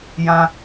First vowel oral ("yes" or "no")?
no